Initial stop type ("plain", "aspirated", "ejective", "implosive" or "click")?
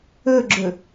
click